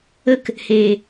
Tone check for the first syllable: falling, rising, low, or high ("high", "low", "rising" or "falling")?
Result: high